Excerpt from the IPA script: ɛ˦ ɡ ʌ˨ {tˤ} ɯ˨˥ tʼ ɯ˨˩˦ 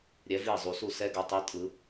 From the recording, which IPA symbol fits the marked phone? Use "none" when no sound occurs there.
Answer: tˤ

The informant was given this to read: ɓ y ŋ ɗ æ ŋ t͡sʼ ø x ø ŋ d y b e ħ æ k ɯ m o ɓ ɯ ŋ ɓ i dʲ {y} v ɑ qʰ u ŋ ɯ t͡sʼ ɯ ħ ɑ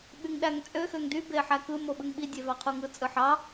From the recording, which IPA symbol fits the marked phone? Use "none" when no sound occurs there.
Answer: e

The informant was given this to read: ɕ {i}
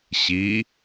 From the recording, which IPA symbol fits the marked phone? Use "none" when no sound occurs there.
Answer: i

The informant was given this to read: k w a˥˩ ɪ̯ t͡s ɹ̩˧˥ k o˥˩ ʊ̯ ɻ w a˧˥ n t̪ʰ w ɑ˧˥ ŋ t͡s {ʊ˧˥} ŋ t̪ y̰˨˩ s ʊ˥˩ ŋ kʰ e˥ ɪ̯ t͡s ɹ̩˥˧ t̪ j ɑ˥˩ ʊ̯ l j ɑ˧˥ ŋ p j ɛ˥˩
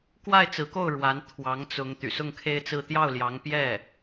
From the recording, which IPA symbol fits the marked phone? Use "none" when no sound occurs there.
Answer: ʊ˧˥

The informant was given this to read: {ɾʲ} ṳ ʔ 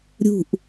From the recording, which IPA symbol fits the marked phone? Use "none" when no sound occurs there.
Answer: ɾʲ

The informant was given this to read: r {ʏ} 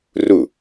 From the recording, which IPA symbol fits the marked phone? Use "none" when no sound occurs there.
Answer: u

